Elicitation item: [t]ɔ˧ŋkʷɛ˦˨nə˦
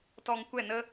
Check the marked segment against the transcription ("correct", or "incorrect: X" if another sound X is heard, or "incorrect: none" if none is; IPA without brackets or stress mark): correct